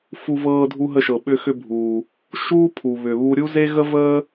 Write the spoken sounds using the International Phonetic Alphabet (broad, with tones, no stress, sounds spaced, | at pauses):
f u˧ v ɤː˧ dʱ u˧ ɦ ə˧ ʃ ɤ˩ ɓ ʏ˧ x ʏ˧ bʱ uː˩ | ʃ uː˥ pʰ u˩ β ʏ˩ β u˧ ɾʲ u˥ z e˥ ɣ ə˥ v əː˥